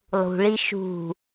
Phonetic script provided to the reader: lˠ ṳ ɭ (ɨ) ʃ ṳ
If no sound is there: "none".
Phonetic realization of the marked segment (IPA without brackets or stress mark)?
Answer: i